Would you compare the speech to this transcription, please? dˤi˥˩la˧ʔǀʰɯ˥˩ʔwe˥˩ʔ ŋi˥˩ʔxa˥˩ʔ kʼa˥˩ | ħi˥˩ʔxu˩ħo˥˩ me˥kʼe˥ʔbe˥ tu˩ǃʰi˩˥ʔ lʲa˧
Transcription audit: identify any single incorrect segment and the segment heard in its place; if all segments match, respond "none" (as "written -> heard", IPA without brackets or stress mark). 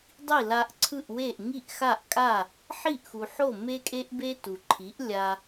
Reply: none